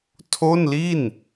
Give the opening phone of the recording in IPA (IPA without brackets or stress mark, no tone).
tʰ